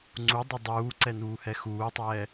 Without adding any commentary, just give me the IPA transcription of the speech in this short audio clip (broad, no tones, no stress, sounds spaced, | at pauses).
ŋ͡ǀ u dˤ e dˤ uː ǀ ɛ n uː h ɛ x uː tˤ ɛː